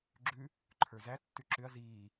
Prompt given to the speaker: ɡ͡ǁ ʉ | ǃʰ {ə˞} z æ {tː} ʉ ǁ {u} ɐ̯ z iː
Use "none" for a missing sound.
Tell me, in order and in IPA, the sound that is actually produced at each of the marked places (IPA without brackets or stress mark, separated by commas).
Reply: ə˞, tː, ʏ